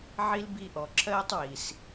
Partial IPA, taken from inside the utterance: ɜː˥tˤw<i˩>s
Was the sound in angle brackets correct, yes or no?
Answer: yes